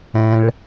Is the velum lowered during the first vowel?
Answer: yes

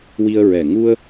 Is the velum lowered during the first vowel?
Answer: no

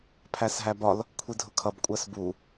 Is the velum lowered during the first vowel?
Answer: no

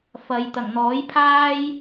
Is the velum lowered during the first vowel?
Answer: no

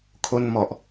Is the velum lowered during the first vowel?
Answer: no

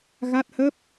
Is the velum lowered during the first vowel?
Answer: no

